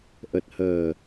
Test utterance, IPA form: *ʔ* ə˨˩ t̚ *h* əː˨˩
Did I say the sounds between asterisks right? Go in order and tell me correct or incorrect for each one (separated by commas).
correct, correct